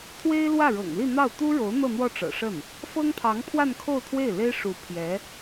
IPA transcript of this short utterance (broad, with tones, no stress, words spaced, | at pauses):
t̪ʰwe˥ɪ̯lwä˥˩ɻɤ̰˨˩ŋli˥˧ n̪ɑ˥˩ʊ̯ t̪u˥ɻo˧˥ʊ̯ n̪ɤ˥˧n̪wɔ˥˩ʈ͡ʂɤ̰˨˩ʂə˥˩n | fɤ˥ŋpʰɑ˧˥ŋpʰwa˥˧nkʰo˥˧ʊ̯ t̪ʰwe˥˩ɪ̯le˥ɪ̯ ʂu˧˥pʰjɛ˧˥